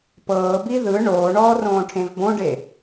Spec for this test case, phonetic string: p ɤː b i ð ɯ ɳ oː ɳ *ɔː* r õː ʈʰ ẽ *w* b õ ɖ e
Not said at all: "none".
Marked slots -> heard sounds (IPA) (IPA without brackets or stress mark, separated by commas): ɔː, v